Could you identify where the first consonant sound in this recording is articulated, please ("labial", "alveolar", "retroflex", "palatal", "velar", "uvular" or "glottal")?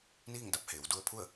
alveolar